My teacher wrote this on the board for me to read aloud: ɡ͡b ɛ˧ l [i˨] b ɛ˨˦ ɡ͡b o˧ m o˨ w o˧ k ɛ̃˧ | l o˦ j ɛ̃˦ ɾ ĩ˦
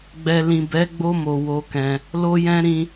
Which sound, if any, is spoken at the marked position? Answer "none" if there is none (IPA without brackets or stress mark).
ĩ˨